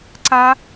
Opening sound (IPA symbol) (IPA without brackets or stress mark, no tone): ǀ